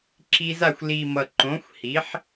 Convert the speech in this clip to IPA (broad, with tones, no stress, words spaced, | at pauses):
ǁi˧za˥˩xʷ li˨˩ mʌ˨˩ǃõ˩˥xʷ hi˩˥ħ